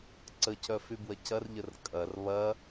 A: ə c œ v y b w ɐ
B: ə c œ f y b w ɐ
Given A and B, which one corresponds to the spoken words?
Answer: B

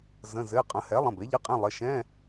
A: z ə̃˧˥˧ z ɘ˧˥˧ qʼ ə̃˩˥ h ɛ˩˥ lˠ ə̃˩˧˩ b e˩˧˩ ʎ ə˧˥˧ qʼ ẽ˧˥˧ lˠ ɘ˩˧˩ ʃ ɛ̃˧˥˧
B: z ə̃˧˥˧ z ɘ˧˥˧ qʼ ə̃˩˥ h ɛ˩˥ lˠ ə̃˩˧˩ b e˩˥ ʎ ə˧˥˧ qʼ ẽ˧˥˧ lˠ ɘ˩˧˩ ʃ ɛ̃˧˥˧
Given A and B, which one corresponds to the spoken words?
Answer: B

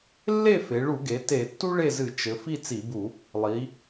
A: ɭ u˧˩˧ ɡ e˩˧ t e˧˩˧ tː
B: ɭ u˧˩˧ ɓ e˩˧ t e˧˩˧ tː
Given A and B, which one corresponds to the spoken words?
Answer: A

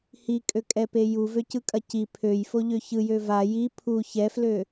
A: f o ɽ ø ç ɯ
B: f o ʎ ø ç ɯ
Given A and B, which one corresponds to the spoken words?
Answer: B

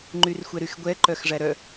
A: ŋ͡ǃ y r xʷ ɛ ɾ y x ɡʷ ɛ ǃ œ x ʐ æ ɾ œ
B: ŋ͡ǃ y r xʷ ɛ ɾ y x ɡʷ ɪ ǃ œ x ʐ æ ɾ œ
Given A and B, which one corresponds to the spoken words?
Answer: A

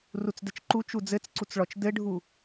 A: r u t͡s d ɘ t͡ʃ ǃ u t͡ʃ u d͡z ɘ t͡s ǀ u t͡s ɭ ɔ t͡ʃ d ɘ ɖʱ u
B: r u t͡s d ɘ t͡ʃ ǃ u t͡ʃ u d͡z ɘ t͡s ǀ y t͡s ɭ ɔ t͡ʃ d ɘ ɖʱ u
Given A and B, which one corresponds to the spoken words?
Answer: A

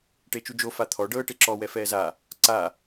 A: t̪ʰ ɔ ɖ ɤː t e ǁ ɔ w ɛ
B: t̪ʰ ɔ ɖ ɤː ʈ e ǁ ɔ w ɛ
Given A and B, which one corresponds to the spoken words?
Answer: B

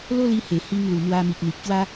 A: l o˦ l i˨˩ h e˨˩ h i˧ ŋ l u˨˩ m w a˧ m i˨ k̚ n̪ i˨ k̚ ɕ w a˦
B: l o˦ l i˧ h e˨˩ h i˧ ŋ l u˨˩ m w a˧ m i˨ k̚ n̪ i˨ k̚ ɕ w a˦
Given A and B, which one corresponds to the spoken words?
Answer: B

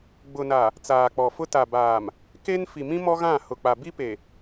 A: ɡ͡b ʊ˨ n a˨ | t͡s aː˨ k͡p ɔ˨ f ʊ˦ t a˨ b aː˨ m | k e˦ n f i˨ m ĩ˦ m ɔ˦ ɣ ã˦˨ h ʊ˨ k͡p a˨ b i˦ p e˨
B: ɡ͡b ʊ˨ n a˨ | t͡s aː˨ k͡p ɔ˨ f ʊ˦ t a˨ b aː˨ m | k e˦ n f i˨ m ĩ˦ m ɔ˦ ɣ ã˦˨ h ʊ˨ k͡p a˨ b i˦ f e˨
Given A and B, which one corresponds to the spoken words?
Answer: A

